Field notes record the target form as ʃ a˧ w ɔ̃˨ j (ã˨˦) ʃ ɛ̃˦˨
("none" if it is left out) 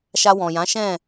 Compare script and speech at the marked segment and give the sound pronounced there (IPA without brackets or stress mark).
ã˨˦